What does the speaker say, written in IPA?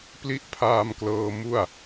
pli˦˥ʔpʰaː˧mklɤː˧ mu˥˩a̯

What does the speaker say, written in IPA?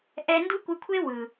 ʔɛ˧ndu˦kʷɯ˧kʷʰe˦ wɯ˨

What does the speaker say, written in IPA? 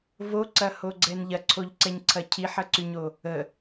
voǀɐhoɡ͡ǀɛn ʎɐǀʰoʎǀɛɲǀʰɐ cʰiħɐǀyɲo | ə

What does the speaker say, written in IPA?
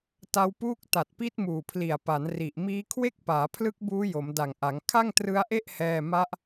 ta˦˥wpuː˥˩k̚ ta˨˩t̚pi˦˥t̚muː˨˩pʰli˨˩a̯ pa˩˦n ri˨˩ʔmiː˦˥ kʰwe˥˩k̚paː˩˦ pʰlɯ˦˥k̚buː˦˥ jo˩˦mda˨˩ŋʔa˩˦ŋ kʰa˥˩ŋtrɯ˦˥a̯ʔe˥˩ʔ hɛː˥˩ ma˦˥ʔ

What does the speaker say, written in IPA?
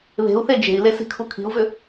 βe̤u̯θe d͡ʒe̤i̯le si̤kʰukʰi̤u̯vʏ

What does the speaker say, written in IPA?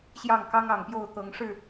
ɕjɑ˥˨ŋkɑ˦ŋɑ˨˩ŋpjo˥˨ʊ̯ t̪ɤ˨˦ŋʂɻ̩˥˨

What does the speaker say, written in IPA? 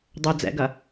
dˤɵ d͡zɛ̰ɡɐ

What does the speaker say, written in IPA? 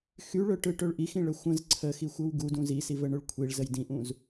xyɭɵʈɯʈɵɭ ʔixĩɭə xʷə̃z ǀʰəxixʷɯw ɡudũ zisivəɳɵɭ kʷʰiɭzəj dĩʔũz

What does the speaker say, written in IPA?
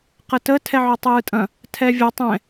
qətə tʰɛʕɔtˤɯːtʼɐ̃ | tʰɛvʲɐ tˤɛ̃

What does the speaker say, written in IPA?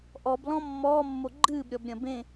ʔɔblɔ̃ mːɔːmːo ɡ͡ǃɨːbɾʲɔb ɾʲɐ̃bẽ

